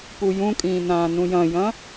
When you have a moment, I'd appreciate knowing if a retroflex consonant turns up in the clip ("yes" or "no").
no